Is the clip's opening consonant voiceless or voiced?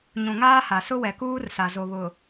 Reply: voiced